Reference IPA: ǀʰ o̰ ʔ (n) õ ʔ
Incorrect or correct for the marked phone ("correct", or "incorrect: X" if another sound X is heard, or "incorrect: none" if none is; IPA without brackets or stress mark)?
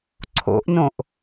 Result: correct